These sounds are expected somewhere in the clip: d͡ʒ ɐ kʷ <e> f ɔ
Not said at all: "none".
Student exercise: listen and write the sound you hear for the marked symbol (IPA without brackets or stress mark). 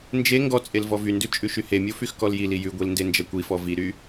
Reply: i